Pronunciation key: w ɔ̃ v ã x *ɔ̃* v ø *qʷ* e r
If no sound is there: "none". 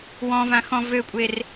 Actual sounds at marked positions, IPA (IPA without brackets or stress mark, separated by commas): ɔ̃, kʷʼ